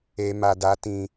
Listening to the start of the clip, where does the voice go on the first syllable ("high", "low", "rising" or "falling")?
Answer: low